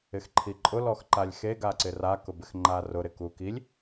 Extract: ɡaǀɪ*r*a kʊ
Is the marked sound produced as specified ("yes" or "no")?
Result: yes